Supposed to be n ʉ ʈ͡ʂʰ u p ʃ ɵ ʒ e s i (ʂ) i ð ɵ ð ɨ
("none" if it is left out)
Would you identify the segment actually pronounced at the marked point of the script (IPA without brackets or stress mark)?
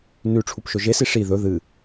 ʂ